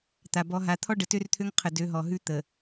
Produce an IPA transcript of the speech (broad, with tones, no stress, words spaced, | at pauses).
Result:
t̪a˨bɔ˨˦ɦa˨˦ t̪ʰɔ˦ɖə˨tø˦rt̪ʰø˦ŋ qʰə˨dø˨˦ɦɔ˨ ɦʉ˦ t̪ə˨